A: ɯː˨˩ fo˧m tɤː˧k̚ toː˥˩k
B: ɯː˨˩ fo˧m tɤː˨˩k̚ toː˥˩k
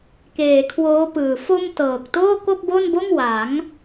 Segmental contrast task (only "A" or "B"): B